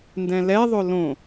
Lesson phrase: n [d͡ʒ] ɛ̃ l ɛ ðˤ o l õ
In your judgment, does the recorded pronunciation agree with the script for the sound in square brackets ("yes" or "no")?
no